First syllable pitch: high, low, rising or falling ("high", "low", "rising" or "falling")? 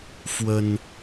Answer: high